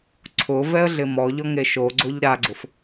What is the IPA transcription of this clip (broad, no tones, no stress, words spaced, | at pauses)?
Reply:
ǀʰʊ vɛə̯ɮɪmɔʎɔ ŋeʃoɡ͡ǀoʎ ɾaɡ͡ǀʊf